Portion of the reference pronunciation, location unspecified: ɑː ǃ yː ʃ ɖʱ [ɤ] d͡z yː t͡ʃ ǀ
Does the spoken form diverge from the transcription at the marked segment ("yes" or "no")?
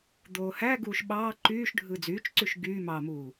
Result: yes